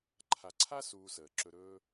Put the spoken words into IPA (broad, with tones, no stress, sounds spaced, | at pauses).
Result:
ǃʰ a˨ ǀʰ a˦ s uː˧ s əː˨ ǁ ɵ˧ ɾ ɵː˦